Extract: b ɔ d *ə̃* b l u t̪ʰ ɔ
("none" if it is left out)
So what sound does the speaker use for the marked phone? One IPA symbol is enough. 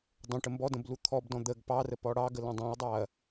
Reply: ə̃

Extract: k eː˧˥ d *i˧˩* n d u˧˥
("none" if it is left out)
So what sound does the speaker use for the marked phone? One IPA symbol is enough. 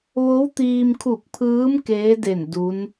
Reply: e˧˩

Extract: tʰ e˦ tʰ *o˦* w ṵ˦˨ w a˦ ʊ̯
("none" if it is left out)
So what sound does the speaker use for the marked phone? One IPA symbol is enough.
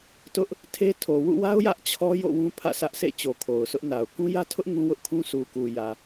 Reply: o˨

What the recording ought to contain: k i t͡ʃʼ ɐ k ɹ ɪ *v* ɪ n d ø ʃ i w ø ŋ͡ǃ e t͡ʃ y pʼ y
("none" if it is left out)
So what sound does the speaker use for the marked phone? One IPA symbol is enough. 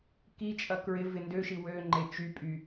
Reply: v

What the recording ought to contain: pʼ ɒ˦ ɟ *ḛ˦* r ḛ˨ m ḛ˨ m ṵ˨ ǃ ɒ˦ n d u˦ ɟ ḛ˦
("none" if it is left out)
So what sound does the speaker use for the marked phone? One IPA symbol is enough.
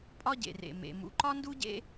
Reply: ḛ˨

